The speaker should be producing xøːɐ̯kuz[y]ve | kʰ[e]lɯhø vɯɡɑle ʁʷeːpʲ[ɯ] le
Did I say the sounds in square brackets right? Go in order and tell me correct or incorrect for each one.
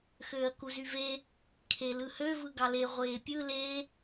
correct, correct, correct

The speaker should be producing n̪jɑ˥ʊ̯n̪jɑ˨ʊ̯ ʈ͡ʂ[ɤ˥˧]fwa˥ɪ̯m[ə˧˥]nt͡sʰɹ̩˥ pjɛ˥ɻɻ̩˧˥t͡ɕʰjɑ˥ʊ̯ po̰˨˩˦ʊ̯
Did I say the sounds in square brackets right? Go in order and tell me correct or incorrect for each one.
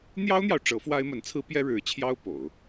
incorrect, correct

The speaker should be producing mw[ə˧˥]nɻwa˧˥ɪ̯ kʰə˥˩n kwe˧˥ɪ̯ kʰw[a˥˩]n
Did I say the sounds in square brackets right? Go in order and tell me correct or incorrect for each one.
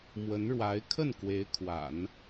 correct, incorrect

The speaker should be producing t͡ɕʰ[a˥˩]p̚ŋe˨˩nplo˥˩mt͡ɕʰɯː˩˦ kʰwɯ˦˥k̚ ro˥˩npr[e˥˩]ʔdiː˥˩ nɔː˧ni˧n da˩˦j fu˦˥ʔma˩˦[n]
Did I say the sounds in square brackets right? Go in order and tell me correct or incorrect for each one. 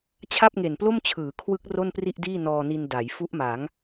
correct, incorrect, incorrect

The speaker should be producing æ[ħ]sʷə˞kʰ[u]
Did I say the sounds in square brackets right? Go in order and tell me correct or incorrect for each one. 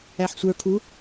correct, correct

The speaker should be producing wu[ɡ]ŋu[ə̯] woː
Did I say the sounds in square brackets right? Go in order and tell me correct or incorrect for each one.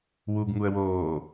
correct, correct

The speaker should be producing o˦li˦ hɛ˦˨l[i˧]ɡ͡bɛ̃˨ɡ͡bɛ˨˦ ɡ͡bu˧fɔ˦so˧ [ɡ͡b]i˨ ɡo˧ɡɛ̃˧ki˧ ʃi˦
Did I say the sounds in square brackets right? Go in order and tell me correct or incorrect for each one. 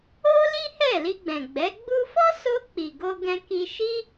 correct, incorrect

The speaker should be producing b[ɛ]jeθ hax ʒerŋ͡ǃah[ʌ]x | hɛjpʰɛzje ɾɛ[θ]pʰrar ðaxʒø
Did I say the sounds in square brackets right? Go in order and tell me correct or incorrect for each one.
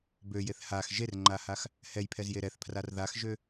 incorrect, incorrect, correct

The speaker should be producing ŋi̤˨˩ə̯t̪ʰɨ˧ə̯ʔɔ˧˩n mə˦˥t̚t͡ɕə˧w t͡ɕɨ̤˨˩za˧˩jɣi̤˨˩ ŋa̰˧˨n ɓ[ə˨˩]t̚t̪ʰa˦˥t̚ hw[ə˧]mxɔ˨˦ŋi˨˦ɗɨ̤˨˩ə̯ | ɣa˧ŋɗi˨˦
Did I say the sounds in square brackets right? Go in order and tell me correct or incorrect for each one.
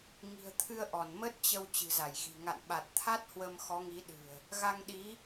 incorrect, correct

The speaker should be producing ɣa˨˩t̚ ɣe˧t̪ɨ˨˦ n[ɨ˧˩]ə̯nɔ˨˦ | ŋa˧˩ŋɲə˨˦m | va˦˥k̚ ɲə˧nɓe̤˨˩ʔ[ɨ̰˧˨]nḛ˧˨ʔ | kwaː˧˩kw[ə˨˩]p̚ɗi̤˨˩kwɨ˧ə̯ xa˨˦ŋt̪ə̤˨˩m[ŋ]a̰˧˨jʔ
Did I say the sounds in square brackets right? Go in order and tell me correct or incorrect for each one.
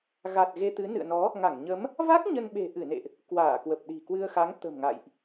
incorrect, incorrect, correct, correct

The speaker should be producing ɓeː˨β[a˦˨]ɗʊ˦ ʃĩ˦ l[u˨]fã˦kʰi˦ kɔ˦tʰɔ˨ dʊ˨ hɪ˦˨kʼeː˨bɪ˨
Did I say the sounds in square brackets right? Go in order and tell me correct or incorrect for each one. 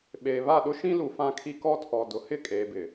correct, correct

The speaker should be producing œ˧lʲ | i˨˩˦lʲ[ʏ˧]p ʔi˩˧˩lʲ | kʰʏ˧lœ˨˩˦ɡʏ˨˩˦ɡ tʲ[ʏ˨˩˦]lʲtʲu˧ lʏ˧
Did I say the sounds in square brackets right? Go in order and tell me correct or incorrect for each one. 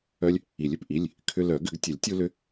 correct, incorrect

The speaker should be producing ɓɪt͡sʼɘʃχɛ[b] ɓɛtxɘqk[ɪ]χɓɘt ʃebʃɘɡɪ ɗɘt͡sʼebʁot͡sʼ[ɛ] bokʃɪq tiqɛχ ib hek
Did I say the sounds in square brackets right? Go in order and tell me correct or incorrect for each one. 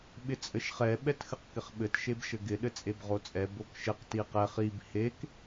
incorrect, correct, correct

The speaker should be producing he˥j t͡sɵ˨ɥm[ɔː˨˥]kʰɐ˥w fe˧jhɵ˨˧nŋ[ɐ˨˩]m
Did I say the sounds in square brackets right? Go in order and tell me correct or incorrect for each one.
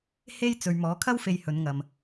correct, incorrect

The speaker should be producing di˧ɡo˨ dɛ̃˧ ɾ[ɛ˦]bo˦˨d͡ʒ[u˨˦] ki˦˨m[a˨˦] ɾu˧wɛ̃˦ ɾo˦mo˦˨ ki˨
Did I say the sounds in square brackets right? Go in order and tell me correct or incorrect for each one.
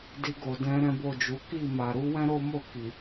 incorrect, correct, incorrect

